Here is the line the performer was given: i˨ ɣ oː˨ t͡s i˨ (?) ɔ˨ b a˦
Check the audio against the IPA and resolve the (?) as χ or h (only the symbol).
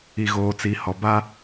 h